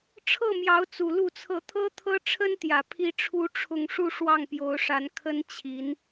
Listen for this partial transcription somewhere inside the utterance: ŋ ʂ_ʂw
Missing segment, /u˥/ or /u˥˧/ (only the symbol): u˥˧